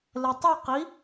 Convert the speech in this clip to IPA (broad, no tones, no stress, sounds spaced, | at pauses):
l ɛ tˤ i q i